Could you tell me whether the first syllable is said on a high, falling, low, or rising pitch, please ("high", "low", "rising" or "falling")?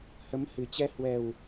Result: rising